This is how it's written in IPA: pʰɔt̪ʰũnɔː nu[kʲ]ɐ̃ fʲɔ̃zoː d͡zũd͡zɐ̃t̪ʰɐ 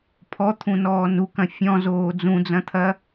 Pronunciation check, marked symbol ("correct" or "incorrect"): incorrect